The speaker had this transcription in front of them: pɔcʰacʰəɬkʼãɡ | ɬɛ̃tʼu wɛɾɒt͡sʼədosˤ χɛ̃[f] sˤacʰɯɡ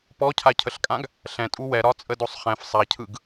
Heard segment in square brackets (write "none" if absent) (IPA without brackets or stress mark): f